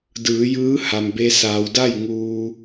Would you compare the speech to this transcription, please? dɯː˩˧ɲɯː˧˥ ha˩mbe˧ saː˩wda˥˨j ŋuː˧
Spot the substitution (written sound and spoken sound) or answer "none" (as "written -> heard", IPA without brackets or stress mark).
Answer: ɲ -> j